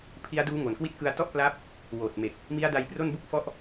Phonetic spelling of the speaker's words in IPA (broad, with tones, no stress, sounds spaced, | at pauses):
pʰ i˦˥ a̯ d uː˦˥ ŋ o˨˩ n k w i˦˥ t̚ k ɯ˧ a̯ t ɔ˥˩ ʔ p l a˦˥ p̚ | w oː˨˩ t̚ m e˨˩ k̚ | m i˦˥ a̯ d a˧ j p r o˥˩ n b u˥˩ k̚ f ɔ˥˩ ʔ